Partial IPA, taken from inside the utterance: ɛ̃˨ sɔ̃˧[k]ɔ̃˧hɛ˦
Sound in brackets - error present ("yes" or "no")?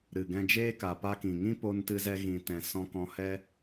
no